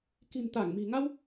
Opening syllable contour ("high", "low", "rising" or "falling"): low